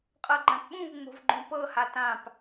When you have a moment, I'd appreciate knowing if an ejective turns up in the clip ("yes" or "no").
yes